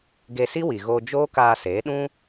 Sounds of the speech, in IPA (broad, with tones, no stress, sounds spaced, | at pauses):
ɡ e˧ s i˦ w i˨ ɣ oː˧ d͡ʒ oː˦ k aː˧ s eː˨˦ ɗ ũ˦